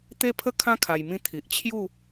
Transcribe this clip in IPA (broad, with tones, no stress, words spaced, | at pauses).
t̪e˦pʰə˦ kʰã˦ kʰa˧j mĩ˧ t̪ʰi˨ʔ t͡ɕʰju˥˧